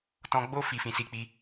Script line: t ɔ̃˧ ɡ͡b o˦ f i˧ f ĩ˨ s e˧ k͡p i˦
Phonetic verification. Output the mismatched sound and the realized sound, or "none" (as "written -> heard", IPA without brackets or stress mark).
e˧ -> i˧